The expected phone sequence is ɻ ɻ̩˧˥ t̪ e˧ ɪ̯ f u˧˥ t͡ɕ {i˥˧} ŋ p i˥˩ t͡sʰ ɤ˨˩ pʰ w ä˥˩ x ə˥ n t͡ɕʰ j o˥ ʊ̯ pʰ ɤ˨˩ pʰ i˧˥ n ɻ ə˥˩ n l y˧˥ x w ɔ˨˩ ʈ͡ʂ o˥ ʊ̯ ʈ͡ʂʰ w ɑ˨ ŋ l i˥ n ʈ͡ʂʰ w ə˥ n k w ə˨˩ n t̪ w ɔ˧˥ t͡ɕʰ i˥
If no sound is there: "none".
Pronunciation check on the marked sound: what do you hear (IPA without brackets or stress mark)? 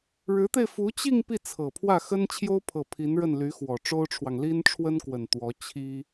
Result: i˥˧